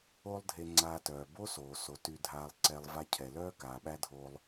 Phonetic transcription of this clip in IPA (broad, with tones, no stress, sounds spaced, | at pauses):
o˥ lˠ dʱ e˧ ŋ͡ǀ aː˧ t œː˩ b o˥ s oː˩ s o˩ t y˧ dʱ aː˧ lˠ ǀ ɛ˧ lˠ v a˧ cʰ ɛ˩ l œː˥ k aː˩ ɓ æ˥ dʱ oː˧ lˠ